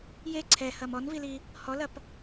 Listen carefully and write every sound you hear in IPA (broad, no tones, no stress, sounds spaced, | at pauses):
j e ǀʰ ɛ h ɐ m ɔ n v i l i | h ɔ l ɐ p